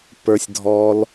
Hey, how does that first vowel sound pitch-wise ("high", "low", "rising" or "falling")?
low